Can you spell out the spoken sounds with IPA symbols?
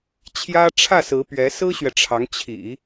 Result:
t͡ɕʰ j ä˥ ʈ͡ʂʰ ä˥˩ s ɹ̩˧˥ p ɥ ɛ˧˥ s ɹ̩˥ ɕ ɥ ɛ˨ ʈ͡ʂʰ ɑ˧˥ ŋ t͡ɕʰ ḭ˨˩˦

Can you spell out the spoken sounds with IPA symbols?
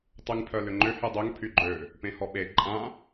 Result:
tˤ y ŋ pʰ œ l ʏ ŋ͡ǃ ʏ h y dˤ ø ŋ pʰ y ɡ͡ǃ ø | p ẽ h ɔ ɓ e ǃʼ ã

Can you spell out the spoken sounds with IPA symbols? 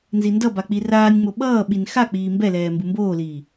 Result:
n z i n d ʌ b a k͡p i r aː nʲ ŋ͡m o ɓ ʌː ɓ i n x a k͡p iː m b ɛ l ɛː m b ɯ m b oː l iː

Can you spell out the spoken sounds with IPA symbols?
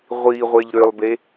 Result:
ʁʷ i ʁʷ e ʎ ɾ ø lˠ b e

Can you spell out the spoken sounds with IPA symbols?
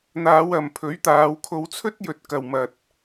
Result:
n̪ aː˨˧ w ɐ˨ m pʰ ɵ˨˥ ɥ t̪ aː˨˧ w kʰ o˧ w t͡sʰ ɵ˥ t̚ j ɵ˨ t̚ k ɐ˨ w m ɐ˨ t̚

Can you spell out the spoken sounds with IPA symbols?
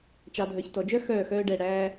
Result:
t͡ʃ ɑ˨ dʱ œ˨ ç t ɔ˨ d͡ʒ œ˦ x œː˦˨ x œː˦ ɖ ɛ˦˨ ɽ æː˦

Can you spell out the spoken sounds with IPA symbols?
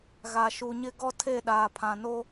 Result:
ɣ a˨ ʃ u˨ ɲ ɪ˦ ɡ ɔ˦ tʰ e˦˨ ɗ aː˨ pʰ ã˨ n o˦

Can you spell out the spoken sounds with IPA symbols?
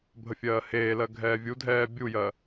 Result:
bʱ ə fʲ ɜː h eː l ɜ ɡʱ ɛː vʲ u dʱ ɛː bʲ u j ɜ

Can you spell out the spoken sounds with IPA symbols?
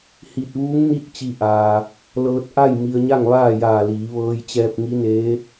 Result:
h i˧˩ t̚ ʋ uː˧˥ ŋ n i˥˨ t̚ t͡ɕ i˧ ʔ aː˧ | l ɤː˧ t̚ ʔ a˥˨ j m i˧ ə̯ ɲ a˥˨ ŋ ʋ aː˥˨ j aː˧˩ l iː˩˧ ʋ ɤː˧ j t͡ɕ ɛː˧ p̚ ŋ i˧˥ n eː˧˥

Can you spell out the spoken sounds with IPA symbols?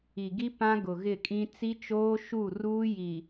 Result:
i˨ ɡ i˦ p ã˦ ɡ ʊ˨ ɣ ɪ˦˨ kʼ ĩ˦ t͡s i˦ t͡ʃ oː˦ ʃ u˦˨ r uː˦ j i˨

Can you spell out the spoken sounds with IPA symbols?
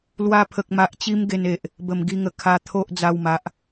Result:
l w a˧ pʰ ə˨ k̚ m a˨ ʔ t͡ɕ i˧ m ɡ e˧ n e˨ ʔ | b ə˨˩ m ɡ i˧ ŋ ə˨˩ kʰ a˧ t̪ʰ o˦ ʔ d͡z a˧ w m a˨ ʔ

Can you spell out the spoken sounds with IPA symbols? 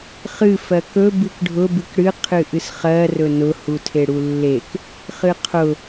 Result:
χ ɨ f ɜ k ɵ b ɨ k ɖʱ ʊ b ɨ k ɽ ɨ qʰ ɨ ʔ ɨ s χ ɜ r ɵ n ʊ h u tʰ e ɽ u lː e k | χ ɨ qʰ ʊ

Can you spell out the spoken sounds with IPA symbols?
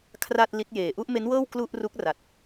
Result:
kʰ r a˥˩ t̚ l i˦˥ t̚ j eː˨˩ ʔ u˥˩ ʔ m e˦˥ n w ɤː˥˩ w k l u˥˩ ʔ r u˦˥ k̚ r a˨˩ t̚

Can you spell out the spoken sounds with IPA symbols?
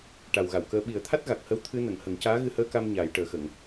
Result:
ʈ a˨˩ w ɣ a˨˩˨ w k əː˧ ɓ i˨˩˦ ə̯ t̪ʰ a˦˥ t̚ ɣ a˨˩ k̚ h ə˧˥ w t̪ʰ ɨ˧ n ə˨˩˨ ŋ h ə˨˩˦ ŋ c aː˧˥ ɣ ɨ˧ h əː˧˥ k a˧ m ɲ aː˨˩˦ j ʈ əː˨˩ x ə˨˩˨ ŋ

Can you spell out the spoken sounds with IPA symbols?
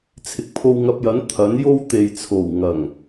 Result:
t͡sʰ ɪ˨ k̚ pʰ o˧ w ŋ ɐ˧ p̚ j ɐ˨˥ n t̪ʰ ɐ˨˥ n j o˥ w t̪ e˨ j t͡sʰ o˨˩ w ŋ ɐ˨˩ ŋ

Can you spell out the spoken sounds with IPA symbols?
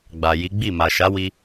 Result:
ɡ͡b a˨ j i˨˦ ɡ͡b i˦˨ m a˨ ʃ a˨˦ w i˧

